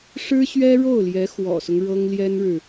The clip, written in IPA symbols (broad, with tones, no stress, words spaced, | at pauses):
ʂɻ̩˥ɕɥɛ˥ɻo˥˩ʊ̯ljɛ˧˥ xwɔ̰˨˩sʊ˦ŋ ɻɤ˥ŋljɛ˥nɻɻ̩˨